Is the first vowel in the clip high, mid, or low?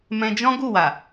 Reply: mid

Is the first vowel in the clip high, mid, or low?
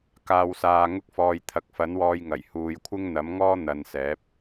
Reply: low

